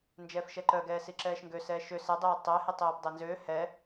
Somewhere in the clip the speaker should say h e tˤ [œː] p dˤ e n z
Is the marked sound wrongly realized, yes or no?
no